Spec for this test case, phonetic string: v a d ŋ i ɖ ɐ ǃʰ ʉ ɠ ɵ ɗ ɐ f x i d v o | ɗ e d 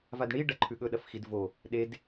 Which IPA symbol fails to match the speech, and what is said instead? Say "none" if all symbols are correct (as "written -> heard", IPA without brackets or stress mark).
ŋ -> ɳ